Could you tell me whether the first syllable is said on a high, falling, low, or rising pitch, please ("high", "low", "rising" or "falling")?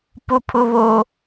high